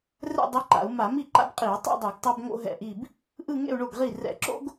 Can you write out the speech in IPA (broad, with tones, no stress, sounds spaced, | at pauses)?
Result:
r ɛ̰˥˧ dˤ i˧˥ ǃ a̰˧˩˧ u̯ m a˧˩˧ m i˥˩ ǃ a̰˥ b qʼ i˧˩˧ u̯ tˤ ḛ˥˧ dˤ o˧˩˧ ɡ tˤ a˥ b ŋ o̰˥ ɦ ɛ̰˥˩ ʔ i˥˧ b | ʔ ɯ˥˧ ŋ ḛ˥˧ u̯ ɳ o˥˩ ɡ ʁ i˥˩ r ɛ̰˧˩˧ ǁ o̰˥ ɡ